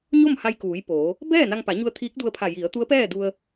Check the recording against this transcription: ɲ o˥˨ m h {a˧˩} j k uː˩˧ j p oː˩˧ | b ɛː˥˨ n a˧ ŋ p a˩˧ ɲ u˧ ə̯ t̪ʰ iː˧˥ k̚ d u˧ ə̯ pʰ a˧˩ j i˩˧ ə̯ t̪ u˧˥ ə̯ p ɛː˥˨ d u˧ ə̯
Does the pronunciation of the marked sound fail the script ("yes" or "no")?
yes